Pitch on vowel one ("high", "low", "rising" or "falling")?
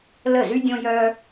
falling